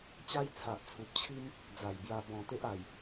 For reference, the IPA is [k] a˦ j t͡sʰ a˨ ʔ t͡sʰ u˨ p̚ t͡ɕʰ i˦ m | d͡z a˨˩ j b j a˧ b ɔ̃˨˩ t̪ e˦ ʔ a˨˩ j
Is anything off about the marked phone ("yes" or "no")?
yes